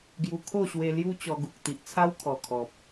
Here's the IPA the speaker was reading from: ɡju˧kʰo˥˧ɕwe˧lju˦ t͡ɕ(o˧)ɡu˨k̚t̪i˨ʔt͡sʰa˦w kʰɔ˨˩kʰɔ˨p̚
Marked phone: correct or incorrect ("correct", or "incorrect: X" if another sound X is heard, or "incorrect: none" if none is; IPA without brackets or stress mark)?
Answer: incorrect: ɔ˧